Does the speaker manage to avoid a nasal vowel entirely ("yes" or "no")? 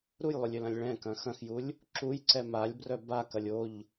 no